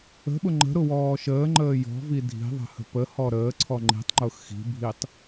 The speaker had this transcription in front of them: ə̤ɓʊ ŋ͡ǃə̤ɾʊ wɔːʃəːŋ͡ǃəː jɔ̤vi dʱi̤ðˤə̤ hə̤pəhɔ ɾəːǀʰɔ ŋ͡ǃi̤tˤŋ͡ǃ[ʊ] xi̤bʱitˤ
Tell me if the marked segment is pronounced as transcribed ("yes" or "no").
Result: yes